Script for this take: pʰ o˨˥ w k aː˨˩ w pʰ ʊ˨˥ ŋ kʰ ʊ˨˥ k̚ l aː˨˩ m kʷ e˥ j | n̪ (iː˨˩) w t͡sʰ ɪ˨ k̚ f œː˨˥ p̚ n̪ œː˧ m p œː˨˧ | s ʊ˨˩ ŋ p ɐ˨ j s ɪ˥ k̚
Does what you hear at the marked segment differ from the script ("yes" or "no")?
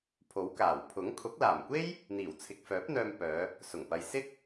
no